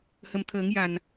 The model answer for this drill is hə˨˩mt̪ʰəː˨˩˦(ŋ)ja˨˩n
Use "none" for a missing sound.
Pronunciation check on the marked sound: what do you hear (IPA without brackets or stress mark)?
ŋ